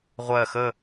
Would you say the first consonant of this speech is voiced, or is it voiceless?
voiced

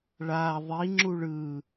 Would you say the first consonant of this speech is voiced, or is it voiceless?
voiced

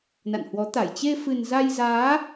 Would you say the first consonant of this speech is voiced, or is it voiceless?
voiced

